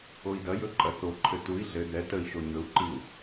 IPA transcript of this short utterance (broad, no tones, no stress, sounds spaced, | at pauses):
o i̯ d ɐ j ɵ ǃʼ ɐ θ o ǃʰ ɘ t u i̯ ɮ ɘ d ɛ t ə i̯ ʃ o ɲ ɵ u̯ ǃ i u̯